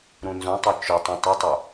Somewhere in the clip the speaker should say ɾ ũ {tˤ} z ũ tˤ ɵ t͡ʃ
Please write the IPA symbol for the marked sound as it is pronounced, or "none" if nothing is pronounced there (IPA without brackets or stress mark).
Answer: n